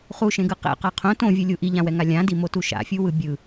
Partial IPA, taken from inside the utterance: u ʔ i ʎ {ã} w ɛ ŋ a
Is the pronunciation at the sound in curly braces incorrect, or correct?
correct